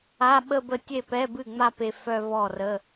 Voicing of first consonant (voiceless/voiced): voiced